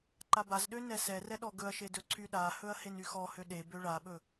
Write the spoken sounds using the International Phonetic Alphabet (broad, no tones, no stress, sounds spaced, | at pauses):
ǃ a b a z ɗ ø n ɛ s ɛ r ɛ ɗ ɔ ɡ ɵ ɐ̯ ʃ e d ɵ ǀʰ y ɗ a h ɵ ɐ̯ h e n y x ɔ h ø ɗ e b ø ɭ a ɓ ɵ